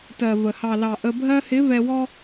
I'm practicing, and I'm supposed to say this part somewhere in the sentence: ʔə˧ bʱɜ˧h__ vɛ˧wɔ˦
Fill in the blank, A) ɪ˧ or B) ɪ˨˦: B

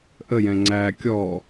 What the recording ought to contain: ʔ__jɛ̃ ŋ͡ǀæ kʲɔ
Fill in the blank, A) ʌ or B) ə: B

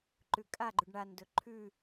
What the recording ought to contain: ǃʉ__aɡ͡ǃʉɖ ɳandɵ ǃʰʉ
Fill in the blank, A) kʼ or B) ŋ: A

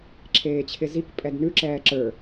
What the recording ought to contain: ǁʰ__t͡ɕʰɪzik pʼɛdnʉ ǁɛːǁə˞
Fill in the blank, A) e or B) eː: B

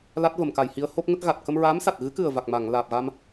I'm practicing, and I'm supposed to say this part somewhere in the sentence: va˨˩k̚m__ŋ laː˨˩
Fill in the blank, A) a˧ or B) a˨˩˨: B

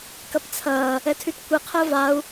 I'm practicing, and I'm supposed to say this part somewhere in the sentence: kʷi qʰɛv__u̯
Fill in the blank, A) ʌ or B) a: B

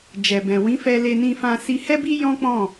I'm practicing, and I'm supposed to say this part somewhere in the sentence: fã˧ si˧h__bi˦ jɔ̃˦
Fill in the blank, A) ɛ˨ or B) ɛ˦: B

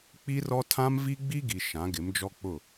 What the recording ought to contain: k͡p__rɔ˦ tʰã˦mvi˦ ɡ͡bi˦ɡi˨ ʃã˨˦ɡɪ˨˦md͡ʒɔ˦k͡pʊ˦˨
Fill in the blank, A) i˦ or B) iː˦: A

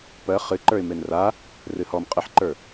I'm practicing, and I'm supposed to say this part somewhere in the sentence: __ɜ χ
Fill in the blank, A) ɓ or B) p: B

